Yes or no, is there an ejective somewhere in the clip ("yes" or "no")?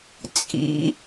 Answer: yes